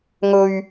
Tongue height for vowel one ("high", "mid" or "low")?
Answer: mid